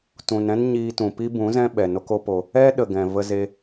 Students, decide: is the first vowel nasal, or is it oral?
nasal